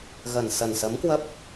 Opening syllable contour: low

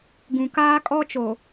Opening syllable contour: low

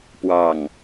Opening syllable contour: low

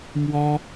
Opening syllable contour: high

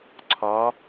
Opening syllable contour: rising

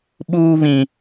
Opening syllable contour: high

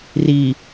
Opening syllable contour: low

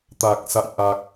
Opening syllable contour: low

